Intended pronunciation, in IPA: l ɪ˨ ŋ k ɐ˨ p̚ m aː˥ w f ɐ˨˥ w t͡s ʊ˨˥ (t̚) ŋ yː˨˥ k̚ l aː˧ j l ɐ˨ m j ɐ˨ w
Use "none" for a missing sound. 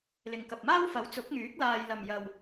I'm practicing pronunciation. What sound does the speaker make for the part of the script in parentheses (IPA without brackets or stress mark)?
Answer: k̚